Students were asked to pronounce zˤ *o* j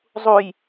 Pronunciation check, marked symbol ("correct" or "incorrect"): incorrect